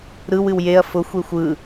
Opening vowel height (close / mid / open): close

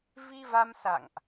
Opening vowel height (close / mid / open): close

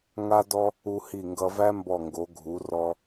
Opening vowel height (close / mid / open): open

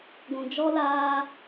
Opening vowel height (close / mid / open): close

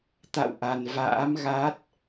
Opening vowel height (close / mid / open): open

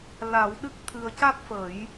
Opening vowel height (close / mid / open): open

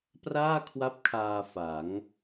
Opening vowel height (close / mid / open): open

